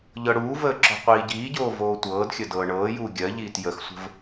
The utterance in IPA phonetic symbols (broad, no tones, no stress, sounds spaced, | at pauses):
ʎ ɤ ɽ uː v əː ǁ ɔ̤ qʷ iː ɟ iː ɟ oː v oː tʷ ɤː d xʲ ə d ɤː ɳ ɤː j uː ɡʲ ɜ ʎ iː t j ə x sʷ ə̤ v